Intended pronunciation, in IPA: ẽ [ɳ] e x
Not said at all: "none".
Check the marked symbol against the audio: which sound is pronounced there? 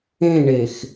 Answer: ɳ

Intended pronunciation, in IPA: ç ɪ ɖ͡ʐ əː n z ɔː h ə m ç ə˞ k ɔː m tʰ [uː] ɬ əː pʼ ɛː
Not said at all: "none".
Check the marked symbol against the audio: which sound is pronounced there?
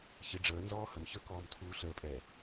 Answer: uː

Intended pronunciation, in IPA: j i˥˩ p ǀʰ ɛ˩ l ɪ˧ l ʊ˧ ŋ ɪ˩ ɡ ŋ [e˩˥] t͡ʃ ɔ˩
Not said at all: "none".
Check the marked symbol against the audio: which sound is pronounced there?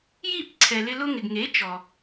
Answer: e˩˥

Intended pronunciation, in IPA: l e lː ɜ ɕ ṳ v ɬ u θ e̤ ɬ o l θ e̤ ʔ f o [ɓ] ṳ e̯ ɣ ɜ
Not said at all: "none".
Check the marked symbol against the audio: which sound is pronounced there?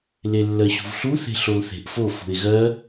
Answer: f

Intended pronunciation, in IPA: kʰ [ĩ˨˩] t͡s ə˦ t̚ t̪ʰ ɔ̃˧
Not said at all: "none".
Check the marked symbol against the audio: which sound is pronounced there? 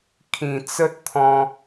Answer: ĩ˨˩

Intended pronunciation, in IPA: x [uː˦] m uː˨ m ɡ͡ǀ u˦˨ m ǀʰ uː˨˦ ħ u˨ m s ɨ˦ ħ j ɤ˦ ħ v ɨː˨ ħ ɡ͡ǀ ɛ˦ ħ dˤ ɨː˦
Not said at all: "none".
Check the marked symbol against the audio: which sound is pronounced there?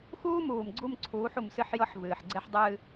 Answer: uː˦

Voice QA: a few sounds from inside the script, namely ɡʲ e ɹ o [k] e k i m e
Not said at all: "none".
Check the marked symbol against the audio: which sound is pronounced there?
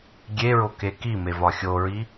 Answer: k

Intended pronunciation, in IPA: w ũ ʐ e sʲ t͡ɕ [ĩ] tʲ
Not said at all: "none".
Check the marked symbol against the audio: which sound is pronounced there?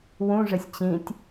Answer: ĩ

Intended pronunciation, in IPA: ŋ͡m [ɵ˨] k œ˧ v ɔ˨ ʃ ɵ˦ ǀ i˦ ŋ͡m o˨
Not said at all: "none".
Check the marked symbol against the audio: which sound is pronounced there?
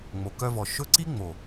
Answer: o˨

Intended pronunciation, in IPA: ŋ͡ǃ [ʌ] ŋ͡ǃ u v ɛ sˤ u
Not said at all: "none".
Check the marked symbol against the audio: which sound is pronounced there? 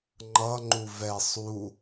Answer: ʌ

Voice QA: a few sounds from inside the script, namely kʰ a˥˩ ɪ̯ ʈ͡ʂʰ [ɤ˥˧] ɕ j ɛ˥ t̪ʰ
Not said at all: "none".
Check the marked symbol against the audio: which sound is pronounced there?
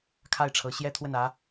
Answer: ɤ˧˥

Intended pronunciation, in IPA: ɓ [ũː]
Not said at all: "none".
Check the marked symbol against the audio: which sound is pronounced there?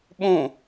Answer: ũ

